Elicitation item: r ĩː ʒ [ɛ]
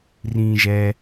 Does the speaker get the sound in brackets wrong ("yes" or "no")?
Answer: no